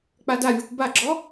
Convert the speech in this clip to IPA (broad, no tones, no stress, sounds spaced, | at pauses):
k͡p a d a vʲ ʌ kʷ b a ɡ͡ǁ ɔ